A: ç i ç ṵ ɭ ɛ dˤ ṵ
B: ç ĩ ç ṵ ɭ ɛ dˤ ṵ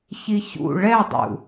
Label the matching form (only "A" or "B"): A